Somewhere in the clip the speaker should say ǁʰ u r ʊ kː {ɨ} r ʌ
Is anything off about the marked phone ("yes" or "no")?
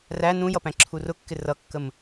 yes